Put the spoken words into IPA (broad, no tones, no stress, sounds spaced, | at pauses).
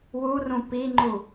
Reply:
w u r ũ p i ŋ͡ǃ u